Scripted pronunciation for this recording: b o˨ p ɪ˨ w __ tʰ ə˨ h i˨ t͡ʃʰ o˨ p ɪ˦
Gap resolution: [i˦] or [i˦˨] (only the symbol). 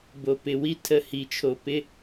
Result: i˦